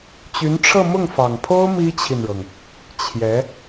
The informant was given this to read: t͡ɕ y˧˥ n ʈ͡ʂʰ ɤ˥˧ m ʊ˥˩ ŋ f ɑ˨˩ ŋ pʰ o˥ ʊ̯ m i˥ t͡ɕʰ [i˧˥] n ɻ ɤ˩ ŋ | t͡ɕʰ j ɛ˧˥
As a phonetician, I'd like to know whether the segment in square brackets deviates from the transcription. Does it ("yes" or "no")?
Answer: yes